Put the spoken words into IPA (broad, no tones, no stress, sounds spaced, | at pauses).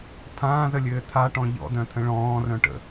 pʰ ãː z ə lʲ ɘː tʰ a ʈ ɔ̃ ʎ ɔ̰ d œ̃ tʰ ə̃ ɭ ɔ̃ː r œ̃ ʈ ə̰